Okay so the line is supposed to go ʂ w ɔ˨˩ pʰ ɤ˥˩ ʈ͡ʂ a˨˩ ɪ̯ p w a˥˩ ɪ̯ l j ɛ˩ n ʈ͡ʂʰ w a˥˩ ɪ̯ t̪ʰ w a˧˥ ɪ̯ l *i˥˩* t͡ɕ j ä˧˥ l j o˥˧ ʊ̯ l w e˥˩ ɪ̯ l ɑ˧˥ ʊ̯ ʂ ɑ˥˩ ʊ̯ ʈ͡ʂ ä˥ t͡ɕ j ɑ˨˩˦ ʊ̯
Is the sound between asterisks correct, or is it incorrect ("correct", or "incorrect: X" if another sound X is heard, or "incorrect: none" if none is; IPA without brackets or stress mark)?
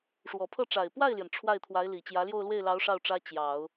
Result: incorrect: i˨˩